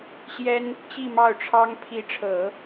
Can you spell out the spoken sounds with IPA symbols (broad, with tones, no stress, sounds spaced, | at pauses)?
ɕ j ɛ˥ n | t͡ɕ i˥˧ m ɑ˥˩ ʊ̯ ʈ͡ʂʰ ɑ˥ ŋ pʰ i˧˥ ʈ͡ʂʰ ɤ˨˩˦